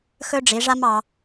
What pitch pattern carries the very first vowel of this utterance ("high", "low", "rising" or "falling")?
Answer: high